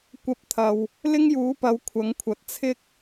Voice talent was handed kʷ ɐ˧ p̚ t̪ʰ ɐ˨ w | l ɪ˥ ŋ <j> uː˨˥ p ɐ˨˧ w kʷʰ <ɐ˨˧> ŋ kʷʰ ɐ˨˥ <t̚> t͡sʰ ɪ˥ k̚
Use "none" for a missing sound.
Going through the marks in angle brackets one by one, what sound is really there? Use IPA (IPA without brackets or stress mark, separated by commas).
j, ɐ˨˥, t̚